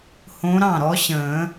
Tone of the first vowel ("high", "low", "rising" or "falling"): rising